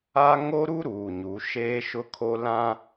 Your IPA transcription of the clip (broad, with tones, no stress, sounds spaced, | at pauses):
a˦ ŋ o˦ ɾ u˦ ɾ uː˨ ɲ u˨˦ ʃ eː˦ ʃ ʊ˦ kʰ o˦ l ã˦